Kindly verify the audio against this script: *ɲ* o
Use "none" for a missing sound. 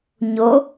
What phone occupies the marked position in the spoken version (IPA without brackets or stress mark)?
ɲ